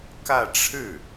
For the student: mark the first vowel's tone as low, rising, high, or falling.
falling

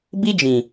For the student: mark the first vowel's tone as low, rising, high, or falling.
high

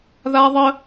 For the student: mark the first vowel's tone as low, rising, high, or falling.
high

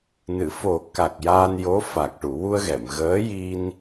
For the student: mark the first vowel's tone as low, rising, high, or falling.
low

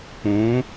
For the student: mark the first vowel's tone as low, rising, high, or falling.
rising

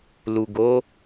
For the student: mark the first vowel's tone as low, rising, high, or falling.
low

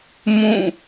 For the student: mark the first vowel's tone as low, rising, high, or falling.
falling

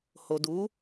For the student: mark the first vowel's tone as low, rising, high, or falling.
low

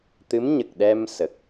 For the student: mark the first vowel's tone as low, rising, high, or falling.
rising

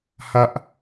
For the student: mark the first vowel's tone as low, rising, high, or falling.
high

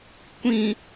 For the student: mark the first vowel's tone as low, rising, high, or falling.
low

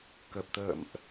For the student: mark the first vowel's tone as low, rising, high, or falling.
low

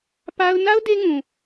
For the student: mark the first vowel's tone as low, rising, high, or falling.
high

